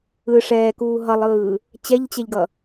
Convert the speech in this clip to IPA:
ɯ ʂ ɛː k uː ɦ ʌ lˠ ɯː | t͡ɕ ɛ ʎ t͡ɕ ɛ ʎ ɡ ʌ

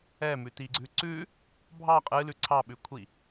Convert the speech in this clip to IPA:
ɛ m ʉ t i ɡ͡ǀ ʉ ǀ ʉ | bʱ ɑ qʼ ɨ l ʉ ǀʰ ɑ ɓ ʉ kʷʰ i

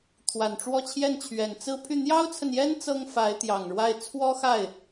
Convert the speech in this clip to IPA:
t̪ʰ w a˨˩ n ʈ͡ʂ w ɔ˥˧ t͡ɕʰ j ɛ˥˩ n t͡ɕʰ ɥ ɛ˨˩ n t͡s ɹ̩˥˧ pʰ y˥˩ n̪ j ɑ˥ ʊ̯ t͡sʰ ə˨ n j ɛ˥ n t͡s ɤ˥ ŋ f a˧˥ ɪ̯ t̪ j ɑ˨˩ ŋ ɻ w a˥˩ ɪ̯ t͡sʰ w ɔ˥ x a˥˩ ɪ̯

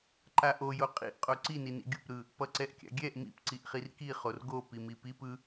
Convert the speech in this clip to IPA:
ǃ a ʔ o j o qʼ ḭ ʔ qʼ o ǀ i n i n ḭ ɡʲ u p ɾ ɯ | p ʌ ǀ ɛ ʔ kʲ a̰ ɡʲ ɛ ʔ m ḭ p ǀ i ʔ χ i r k i χ o r ɡ o p i m i p i p ɯ

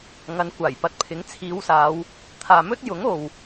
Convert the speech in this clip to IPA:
ŋ ɐ˨˧ n kʷ aː˨˩ j p ɐ˧ t̚ pʰ ɪ˨˥ ŋ t͡sʰ iː˨˧ w s aː˨˧ w | t̪ʰ aː˨ m ɵ˥ t̚ j ʊ˨˥ ŋ o˨ w

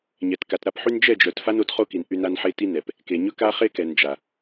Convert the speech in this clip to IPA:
ɲ ɛ˨ t k a˨ t ɾ a˦ p ħ y˦ n d͡ʒ ɛ˦˨ d͡ʒ œ˨ t f a˦ n o˨˦ t χ o˦ k i˨ n ʔ y˦ n a˦ n ħ e˦ t i˦ n ɛ˨ p | k e˨ ɲ ɵ˦ k a˦ χ e˦ k ɛ˨ n d͡ʒ a˨

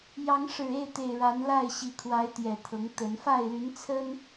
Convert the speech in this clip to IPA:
j ɑ˨˦ ŋ ʂ ɻ̩˨˩ e˥˨ ɪ̯ t̪ e˨˩ ɪ̯ ɻ a˨˦ n l a˥˨ ɪ̯ ɕ i˨˩ kʰ w a˨˦ ɪ̯ t̪ j ɛ˨˩ t̪ʰ ɤ˨˦ ŋ t̪ ə˨˦ n f a˥˨ ɪ̯ l y˨˦ n t͡sʰ ə˦ n

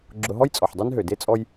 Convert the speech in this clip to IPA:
ɡ͡ǁ ʊ˨ ɦ ɔ˦ j t͡sʼ ɔ˩ ħ dˤ ø˦ n ɦ ø˩ d e˥ t͡sʼ ɔ˦ j

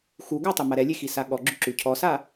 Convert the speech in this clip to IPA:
x u ɡ a tˤ ʉ m a ɾ ɛ lʲ e x i s a ɠ ɔ ɡ͡ǁ ʉ ǁ ʉ cʰ ɔ s a

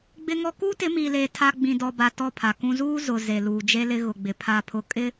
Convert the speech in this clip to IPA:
ɡ͡b ɪ˦ ŋ ɔ˦ k uː˦ t ɪ˨˦ m iː˨ l eː˨ tʰ a˦ ɡ͡b ĩ˨ d ɔ˨ b a˨ t ɔ˦˨ pʰ a˨ k ũ˦ z uː˦ z ʊ˨ z e˨ l uː˨ d͡ʒ e˦ l ɪ˦ ɣ ʊ˨ ɡ͡b ɪ˨ pʰ a˦˨ pʰ ʊ˦ kʼ ɪ˦

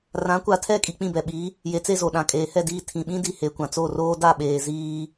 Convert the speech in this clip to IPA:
r ã˨˦ kʷ a˨ tʰ ɛ˦˨ kʼ i˨ k͡p ĩ˦˨ b ɛ˨ ɓ i˨˦ | j e˨ t͡s e˦˨ z o˨ ɗ ã˨ kʼ eː˨ h ɛ˦˨ d iː˦˨ tʰ ĩ˨ ɓ ĩ˦ d i˨ h e˨ kʷ ã˨ t͡s o˦˨ r oː˦ d a˦˨ ɓ eː˨ z iː˦

